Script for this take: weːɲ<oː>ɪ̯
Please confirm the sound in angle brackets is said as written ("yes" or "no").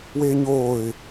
yes